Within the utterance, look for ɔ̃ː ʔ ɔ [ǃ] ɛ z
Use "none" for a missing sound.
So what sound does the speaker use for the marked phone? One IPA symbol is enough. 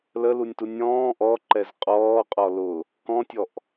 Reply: ǃ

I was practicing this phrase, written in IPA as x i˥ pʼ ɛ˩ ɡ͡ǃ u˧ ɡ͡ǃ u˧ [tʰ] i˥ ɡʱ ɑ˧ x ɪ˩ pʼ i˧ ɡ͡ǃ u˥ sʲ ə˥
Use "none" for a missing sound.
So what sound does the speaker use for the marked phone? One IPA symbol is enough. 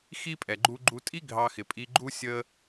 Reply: tʼ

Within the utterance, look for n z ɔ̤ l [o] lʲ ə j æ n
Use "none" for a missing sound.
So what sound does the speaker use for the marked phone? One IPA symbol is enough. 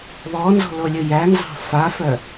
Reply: o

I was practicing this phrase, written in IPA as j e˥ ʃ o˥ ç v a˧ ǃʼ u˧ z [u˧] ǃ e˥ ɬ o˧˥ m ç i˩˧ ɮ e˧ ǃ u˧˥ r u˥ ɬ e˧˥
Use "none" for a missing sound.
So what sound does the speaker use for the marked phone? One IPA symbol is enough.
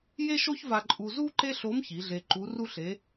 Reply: u˥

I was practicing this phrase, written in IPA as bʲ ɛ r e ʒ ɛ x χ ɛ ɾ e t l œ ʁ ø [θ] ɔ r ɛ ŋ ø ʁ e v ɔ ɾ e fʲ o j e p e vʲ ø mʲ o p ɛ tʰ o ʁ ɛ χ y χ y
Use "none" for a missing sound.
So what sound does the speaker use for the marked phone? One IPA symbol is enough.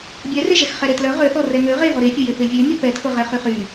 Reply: θ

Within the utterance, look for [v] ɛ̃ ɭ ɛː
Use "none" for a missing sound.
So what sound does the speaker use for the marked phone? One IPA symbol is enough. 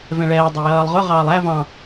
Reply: v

